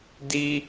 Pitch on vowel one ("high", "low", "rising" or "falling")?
high